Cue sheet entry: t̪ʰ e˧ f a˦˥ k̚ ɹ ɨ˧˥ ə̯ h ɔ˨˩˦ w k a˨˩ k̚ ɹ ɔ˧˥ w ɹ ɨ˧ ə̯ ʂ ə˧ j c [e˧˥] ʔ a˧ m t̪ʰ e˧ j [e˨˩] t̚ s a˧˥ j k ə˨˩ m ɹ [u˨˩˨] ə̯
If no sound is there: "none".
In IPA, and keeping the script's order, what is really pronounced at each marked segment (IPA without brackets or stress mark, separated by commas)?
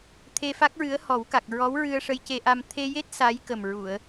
e˧, e˦˥, u˨˩˨